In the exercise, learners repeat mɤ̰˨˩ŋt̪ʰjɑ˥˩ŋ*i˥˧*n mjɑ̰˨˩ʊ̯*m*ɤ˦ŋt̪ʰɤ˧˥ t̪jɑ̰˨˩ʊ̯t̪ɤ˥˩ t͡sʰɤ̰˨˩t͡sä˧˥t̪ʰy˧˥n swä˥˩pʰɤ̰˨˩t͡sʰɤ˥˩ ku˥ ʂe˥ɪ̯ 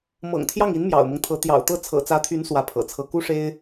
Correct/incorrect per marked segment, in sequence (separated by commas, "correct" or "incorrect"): incorrect, correct